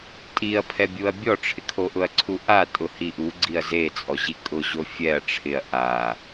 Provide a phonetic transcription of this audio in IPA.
tʼ i ɐ̯ pʰ ɛ bʲ u ɐ̯ bʲ ɔ ʈ͡ʂʰ ɪ kʰ o ʔ ʊ ɐ̯ ǀʰ u ʔ a tʼ ʊ h i ʔ u ɡ͡ǀ i ɐ̯ z e t͡sʼ ɔ ʑ i kʼ ʊ ʑ o fʲ ɛ ɐ̯ ʈ͡ʂʰ ɪ ɐ̯ ʔ a

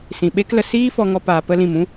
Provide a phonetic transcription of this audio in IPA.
s ĩ˨ ɓ e˦ k l ə˧ s iː˦ f ɔ˧ ŋ ɔ˧ p aː˨ p ə˧ l ĩ˨ m ũ˦

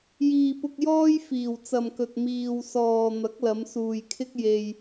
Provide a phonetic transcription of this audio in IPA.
j iː˨ p ʊ˧ k̚ j ɔː˥ j f iː˨˩ w t͡s ɐ˨ m k ɵ˨ t̚ m iː˨ w s ɔː˨ n̪ ɐ˨˥ k̚ l ɐ˨˧ m s uː˨ j kʰ ɪ˥ k̚ j e˧ j

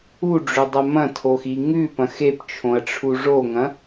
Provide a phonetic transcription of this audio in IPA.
u ɖ͡ʐ ɵ dˤ ɐ m ɐ̃ tʰ o x i ŋ ʉ p ɐ̃ x e p t͡ʃʰ õ ɐ̯ ʈ͡ʂʰ u ʐ o ŋ ɐ̃

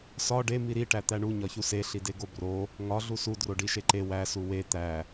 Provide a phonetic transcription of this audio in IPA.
s ɒ ɖ e m i ɾ i ʈ æ t̪ æ ɳ u ɲ ɒ ç u s e ɬ i d e ɡ o b r o | ŋ ɒ ɮ u s u d r o ɖ i ʃ e ǃ e w æ s u w e t̪ æ

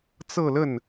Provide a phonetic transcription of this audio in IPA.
t͡s ɤ˥˧ l ə˥˩ n

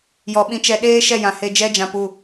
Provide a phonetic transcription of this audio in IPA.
j ɔ˨ ɓ ĩ˧ t͡ʃ ɛ˧ ɗ eː˦ ʃ ɛ˦˨ j ã˨ h e˧ d͡ʒ ɛ˦ d͡ʒ ã˧ p u˦˨

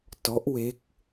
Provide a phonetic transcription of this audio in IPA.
t ɔ˦˥ ʔ w e˦˥ k̚

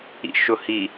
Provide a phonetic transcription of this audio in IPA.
ḭ ʃ ʊ h i

